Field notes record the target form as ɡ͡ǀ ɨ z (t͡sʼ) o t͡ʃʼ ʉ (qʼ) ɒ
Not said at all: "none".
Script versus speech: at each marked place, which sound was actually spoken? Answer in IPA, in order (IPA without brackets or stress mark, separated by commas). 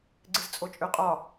t͡sʼ, qʼ